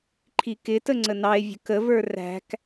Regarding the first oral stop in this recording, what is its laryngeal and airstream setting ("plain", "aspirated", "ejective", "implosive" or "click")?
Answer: click